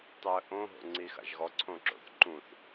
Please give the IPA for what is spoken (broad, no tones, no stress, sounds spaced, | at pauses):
tˤ i ə̯ ʔ õ ɦ o̰ ŋ͡ǀ i x a̰ ʒ ɣ ɔ ǀʰ õ ǁ o̰ θ ǃ ũ θ